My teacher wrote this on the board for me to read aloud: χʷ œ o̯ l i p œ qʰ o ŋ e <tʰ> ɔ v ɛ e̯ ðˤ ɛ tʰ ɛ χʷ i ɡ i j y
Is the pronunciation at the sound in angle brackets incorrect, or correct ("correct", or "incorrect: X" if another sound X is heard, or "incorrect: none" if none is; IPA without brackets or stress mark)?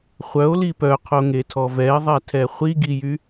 correct